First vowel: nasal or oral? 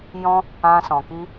nasal